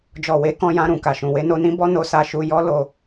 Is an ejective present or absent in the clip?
absent